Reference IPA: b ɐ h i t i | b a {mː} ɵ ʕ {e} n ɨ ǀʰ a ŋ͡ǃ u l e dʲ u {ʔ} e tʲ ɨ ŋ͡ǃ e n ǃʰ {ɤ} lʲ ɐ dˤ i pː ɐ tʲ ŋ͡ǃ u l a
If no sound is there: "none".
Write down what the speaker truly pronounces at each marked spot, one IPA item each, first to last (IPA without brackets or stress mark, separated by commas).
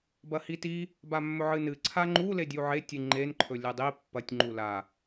mː, ɨ, ʕ, ɵ